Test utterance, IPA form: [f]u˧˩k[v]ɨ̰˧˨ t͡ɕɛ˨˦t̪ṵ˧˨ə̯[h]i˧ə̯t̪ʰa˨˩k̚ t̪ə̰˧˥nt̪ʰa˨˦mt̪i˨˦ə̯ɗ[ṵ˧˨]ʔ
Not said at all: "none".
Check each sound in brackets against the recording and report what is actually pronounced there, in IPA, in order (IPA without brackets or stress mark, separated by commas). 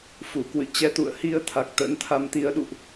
f, w, h, ṵ˧˨